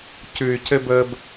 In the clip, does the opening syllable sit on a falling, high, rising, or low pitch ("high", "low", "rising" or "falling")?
low